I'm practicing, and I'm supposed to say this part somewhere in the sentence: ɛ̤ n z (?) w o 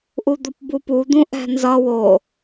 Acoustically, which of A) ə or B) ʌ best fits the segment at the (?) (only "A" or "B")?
B